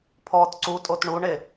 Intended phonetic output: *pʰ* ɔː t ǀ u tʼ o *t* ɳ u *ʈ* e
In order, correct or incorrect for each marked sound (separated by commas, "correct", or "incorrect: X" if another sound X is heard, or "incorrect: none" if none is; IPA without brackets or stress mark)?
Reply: correct, correct, incorrect: ɳ